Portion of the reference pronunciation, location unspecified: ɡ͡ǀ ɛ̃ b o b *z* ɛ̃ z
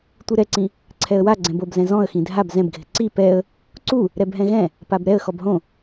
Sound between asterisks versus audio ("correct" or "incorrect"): correct